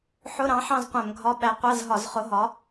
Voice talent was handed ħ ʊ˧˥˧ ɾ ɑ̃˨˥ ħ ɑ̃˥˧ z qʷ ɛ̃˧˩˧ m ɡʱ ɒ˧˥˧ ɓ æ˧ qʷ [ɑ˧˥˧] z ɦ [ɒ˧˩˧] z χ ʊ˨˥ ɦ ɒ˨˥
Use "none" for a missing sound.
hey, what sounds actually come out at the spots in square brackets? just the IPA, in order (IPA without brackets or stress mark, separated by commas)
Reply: ɑ˧˥˧, ɒ˧˩˧